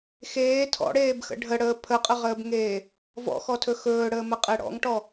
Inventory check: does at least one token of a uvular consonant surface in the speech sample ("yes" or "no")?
yes